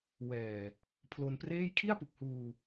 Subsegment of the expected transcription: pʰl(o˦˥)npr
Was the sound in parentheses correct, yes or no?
no